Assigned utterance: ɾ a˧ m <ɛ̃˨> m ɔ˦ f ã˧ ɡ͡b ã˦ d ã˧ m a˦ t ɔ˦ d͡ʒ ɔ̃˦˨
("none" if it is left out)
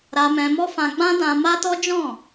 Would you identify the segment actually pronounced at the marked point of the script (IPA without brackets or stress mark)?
ɛ̃˧